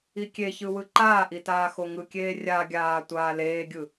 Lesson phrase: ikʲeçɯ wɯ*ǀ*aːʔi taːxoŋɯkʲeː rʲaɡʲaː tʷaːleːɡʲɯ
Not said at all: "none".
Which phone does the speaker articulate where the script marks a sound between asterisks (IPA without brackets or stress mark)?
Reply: ǃ